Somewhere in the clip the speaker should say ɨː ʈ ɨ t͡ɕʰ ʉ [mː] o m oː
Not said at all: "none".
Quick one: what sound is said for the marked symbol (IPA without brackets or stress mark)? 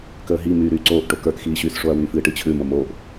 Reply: m